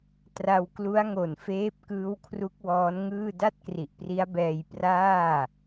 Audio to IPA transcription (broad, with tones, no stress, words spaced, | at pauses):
tra˧wklu˦˥a̯ŋo˨˩n feː˦˥p̚ kɯː˦˥wkʰru˦˥k̚wɔː˦˥nŋɯː˥˩ da˥˩t̚kri˨˩ʔpri˦˥a̯bɛː˧j praː˥˩